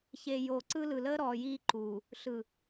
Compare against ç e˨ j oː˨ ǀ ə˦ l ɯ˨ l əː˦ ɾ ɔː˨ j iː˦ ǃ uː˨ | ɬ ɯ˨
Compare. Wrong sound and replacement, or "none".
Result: ə˦ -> ɯ˦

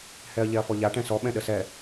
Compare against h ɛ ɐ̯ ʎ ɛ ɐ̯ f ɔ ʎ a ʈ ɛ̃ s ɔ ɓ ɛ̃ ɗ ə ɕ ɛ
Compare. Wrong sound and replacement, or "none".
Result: ɕ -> s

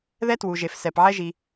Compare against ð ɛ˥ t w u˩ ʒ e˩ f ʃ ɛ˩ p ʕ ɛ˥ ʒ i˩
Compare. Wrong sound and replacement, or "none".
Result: ʃ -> s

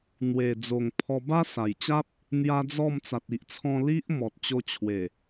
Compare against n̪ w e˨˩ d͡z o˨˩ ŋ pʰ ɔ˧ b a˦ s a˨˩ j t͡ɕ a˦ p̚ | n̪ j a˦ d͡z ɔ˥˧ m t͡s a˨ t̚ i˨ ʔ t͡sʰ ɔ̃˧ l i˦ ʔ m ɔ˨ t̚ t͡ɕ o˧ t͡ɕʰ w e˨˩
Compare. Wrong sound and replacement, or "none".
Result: none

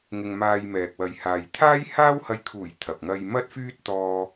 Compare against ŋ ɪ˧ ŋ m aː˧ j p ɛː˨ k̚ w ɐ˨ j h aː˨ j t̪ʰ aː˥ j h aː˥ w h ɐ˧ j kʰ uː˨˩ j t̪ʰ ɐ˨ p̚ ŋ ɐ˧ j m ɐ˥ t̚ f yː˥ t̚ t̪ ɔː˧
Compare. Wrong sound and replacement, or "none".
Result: p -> m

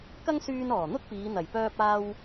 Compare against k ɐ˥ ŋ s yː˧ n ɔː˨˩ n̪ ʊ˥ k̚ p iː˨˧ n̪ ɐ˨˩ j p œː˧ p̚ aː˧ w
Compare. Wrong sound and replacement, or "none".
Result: none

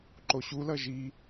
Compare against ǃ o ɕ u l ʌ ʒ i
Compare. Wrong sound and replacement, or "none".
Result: none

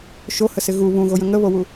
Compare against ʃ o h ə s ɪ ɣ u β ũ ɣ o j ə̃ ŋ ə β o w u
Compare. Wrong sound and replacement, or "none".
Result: none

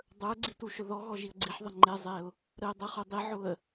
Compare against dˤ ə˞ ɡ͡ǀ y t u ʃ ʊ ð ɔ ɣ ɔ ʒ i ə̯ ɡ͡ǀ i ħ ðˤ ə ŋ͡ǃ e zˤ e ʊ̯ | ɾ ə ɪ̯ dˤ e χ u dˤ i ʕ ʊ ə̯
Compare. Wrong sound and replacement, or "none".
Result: y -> i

